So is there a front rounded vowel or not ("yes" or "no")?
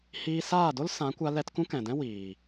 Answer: no